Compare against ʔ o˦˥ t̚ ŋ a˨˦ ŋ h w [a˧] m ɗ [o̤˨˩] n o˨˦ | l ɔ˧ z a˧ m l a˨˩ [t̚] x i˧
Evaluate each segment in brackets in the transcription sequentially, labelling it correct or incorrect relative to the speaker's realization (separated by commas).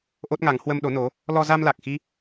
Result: incorrect, incorrect, incorrect